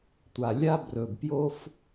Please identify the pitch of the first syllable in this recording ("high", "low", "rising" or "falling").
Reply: low